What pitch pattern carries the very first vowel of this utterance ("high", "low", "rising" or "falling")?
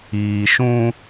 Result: low